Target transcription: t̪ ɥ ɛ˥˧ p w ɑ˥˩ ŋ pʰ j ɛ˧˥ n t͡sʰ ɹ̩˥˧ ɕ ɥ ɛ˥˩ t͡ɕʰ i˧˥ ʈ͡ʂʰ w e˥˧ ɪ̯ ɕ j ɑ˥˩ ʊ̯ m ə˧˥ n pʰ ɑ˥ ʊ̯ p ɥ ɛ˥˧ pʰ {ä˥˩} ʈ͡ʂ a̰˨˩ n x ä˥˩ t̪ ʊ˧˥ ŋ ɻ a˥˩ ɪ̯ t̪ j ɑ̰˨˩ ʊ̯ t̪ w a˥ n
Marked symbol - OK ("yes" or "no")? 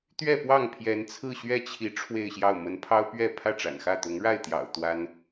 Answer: yes